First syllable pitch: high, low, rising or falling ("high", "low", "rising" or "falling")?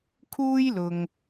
high